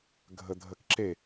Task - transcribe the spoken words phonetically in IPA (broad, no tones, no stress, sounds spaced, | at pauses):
ɡʱ ə dʱ ə k ǁ e